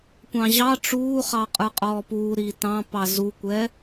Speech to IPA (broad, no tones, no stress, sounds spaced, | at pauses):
kʷ ɑ̃ ʑ ɑ ʈ͡ʂ uː χ ɑ qʼ ə˞ qʼ ɔː p uː ɾ iː t ɑ̃ p ɑ z u kʷ ɛ